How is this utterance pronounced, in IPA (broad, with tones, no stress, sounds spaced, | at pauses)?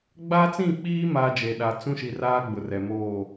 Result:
ɡ͡b a˦ t͡s ĩ˦˨ k͡p iː˦ m aː˦ d͡ʒ e˨ ɗ a˨ t͡s ũ˦ ʃ i˨ r aː˦ ɡ͡b ʊ˨ r ɛ˨ m oː˦˨